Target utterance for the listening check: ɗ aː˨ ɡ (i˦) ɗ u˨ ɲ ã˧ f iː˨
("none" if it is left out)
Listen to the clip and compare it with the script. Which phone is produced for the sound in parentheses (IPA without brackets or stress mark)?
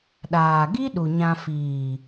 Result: i˦